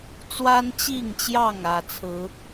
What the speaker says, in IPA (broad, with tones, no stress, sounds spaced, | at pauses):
t͡s w a˦ n t͡ɕ i˥˨ ŋ t͡ɕ j ɑ˥˨ ŋ ä˨˩ t͡sʰ ɹ̩˨˦